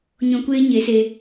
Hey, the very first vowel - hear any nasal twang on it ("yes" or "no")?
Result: yes